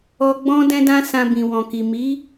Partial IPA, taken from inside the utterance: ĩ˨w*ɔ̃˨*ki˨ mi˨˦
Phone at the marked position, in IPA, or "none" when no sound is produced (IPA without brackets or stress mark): ɔ̃˨